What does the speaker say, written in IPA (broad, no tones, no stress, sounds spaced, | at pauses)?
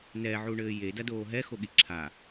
n ɛ ʕ u ɳ ɘː j e d ɐ d oː ɦ ɛ x o ɠ i ǁʰ a